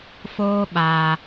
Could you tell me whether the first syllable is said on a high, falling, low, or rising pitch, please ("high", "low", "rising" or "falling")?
high